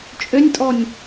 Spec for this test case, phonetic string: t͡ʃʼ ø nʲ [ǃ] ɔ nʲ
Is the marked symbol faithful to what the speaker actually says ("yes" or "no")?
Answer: no